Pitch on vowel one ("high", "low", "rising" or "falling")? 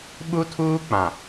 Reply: high